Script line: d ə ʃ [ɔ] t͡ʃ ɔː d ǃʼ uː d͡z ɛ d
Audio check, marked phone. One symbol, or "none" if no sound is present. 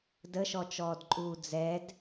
ɔ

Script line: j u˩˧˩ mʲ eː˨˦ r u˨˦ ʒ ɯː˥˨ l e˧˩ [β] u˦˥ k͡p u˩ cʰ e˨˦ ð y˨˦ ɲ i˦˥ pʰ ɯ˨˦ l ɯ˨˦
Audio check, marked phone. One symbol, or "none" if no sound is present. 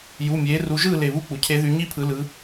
β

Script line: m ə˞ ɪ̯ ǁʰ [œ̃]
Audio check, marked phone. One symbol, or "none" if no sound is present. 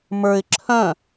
œ̃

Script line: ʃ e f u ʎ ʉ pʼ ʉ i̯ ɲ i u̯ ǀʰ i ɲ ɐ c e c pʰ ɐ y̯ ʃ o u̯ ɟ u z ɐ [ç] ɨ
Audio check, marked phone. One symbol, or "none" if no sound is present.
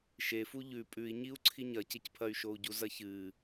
ç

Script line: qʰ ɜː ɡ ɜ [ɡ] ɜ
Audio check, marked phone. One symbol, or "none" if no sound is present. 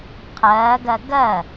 ɡ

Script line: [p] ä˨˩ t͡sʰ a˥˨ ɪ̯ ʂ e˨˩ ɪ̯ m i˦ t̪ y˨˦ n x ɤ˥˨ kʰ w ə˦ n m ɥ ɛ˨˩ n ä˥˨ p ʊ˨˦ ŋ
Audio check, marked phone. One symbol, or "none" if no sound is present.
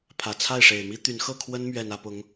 pʰ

